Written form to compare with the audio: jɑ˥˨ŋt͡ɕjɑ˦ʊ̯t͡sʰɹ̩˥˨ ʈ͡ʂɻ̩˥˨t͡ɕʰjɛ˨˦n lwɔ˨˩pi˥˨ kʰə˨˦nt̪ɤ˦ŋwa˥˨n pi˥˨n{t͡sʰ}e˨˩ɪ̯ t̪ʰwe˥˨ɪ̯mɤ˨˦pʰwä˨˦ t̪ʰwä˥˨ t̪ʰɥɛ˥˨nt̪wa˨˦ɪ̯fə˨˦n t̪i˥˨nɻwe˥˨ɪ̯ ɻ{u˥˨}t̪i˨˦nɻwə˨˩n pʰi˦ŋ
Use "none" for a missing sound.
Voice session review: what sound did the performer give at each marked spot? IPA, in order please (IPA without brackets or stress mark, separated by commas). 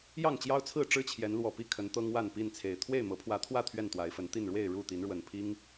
t͡sʰ, u˥˨